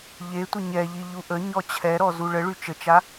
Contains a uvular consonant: no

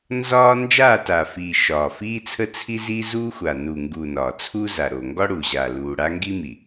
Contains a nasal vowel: no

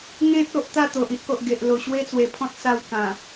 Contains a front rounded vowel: no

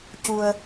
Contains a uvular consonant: no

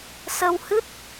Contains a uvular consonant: no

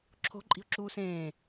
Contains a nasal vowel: yes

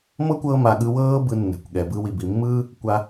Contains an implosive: yes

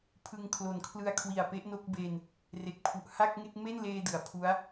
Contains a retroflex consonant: no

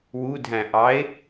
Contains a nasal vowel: yes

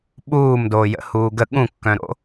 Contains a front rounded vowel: yes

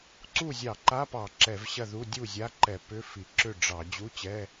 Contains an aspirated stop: no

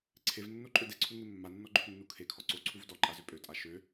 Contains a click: yes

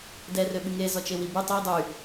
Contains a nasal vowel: no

